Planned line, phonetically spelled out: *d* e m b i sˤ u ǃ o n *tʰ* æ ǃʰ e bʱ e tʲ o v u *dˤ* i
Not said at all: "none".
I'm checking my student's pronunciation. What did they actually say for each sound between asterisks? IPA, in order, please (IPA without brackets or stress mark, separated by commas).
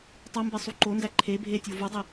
tˤ, d, dˤ